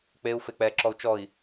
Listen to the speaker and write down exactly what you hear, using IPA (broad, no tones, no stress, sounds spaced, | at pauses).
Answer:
k͡p e u̯ f e k͡p ɛ ǁ ɔ u̯ t͡ʃ ɔ i̯